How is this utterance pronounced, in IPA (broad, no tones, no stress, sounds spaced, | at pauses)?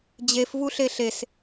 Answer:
d͡ʑ e f v u ɬ e ɬ e s